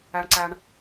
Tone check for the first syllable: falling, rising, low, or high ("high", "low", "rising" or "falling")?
low